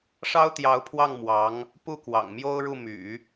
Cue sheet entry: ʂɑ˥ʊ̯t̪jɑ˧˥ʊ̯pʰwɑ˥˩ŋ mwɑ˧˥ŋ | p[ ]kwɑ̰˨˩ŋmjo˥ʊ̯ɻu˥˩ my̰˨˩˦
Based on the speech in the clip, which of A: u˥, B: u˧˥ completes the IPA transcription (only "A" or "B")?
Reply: A